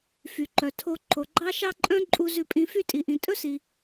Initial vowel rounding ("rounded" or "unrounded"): rounded